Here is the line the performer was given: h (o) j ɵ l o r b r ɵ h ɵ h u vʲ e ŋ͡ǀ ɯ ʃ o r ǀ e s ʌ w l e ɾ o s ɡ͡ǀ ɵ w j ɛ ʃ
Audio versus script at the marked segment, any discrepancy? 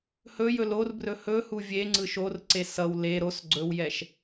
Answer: yes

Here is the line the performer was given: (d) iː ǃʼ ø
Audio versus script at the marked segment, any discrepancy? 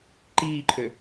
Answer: yes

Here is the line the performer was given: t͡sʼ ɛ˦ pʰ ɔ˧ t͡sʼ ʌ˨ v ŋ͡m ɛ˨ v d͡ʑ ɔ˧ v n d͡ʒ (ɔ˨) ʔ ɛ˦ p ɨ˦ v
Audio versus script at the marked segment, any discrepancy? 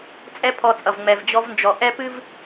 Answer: no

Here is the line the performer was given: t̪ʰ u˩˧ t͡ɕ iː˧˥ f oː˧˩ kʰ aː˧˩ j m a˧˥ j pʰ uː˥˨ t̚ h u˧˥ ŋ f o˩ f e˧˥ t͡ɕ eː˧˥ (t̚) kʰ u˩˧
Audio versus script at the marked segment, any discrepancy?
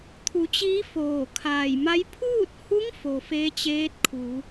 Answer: no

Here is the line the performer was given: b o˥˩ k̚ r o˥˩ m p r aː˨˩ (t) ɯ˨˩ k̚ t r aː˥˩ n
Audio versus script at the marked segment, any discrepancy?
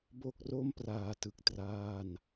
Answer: no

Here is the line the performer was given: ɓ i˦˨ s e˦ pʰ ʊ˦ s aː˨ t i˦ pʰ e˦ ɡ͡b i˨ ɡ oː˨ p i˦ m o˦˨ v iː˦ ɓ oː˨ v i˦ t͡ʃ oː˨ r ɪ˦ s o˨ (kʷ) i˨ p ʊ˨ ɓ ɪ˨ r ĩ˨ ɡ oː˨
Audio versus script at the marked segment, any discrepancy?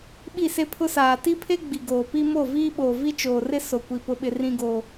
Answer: no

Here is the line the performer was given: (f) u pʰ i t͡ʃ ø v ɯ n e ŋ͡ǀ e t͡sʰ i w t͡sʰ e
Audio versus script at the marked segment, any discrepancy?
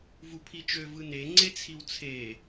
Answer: yes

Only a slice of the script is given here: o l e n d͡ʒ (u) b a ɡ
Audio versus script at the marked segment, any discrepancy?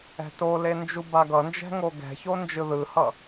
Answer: no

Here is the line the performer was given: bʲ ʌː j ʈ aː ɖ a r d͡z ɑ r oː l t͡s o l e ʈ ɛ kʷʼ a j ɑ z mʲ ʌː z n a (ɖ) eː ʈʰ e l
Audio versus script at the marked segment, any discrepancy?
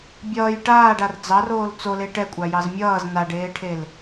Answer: no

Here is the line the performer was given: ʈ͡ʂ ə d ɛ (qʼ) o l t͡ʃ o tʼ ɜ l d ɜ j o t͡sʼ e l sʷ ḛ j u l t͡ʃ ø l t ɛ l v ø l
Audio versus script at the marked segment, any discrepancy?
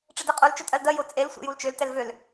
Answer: no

